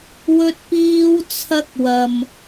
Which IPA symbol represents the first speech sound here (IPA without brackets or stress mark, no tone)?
w